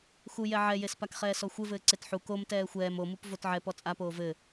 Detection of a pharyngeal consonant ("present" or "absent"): present